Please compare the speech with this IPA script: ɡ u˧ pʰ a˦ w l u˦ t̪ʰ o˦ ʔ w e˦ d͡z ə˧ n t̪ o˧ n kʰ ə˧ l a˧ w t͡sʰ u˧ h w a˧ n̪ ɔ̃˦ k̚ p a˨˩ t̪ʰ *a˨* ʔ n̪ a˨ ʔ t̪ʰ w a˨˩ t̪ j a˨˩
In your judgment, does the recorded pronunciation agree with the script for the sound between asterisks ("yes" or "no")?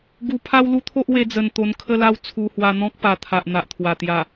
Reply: yes